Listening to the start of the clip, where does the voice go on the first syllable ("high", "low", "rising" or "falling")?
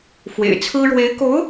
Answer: low